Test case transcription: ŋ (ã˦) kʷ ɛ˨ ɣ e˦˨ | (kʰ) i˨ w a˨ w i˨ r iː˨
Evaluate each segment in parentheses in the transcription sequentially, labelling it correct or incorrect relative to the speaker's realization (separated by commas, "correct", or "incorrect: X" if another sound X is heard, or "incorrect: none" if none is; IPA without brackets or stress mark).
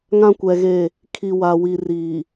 correct, correct